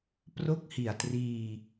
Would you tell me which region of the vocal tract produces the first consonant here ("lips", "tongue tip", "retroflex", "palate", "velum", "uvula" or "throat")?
lips